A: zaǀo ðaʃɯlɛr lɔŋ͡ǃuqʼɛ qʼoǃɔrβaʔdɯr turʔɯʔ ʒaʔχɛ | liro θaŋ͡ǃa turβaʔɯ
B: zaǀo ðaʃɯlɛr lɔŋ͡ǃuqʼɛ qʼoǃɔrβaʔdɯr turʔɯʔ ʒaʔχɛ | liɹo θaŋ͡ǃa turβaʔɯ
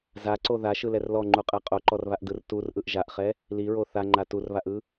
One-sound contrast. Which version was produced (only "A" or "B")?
B